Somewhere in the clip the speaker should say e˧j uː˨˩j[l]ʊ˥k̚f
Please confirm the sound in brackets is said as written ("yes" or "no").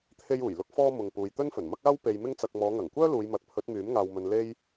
yes